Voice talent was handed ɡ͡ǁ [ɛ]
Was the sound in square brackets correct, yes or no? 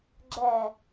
yes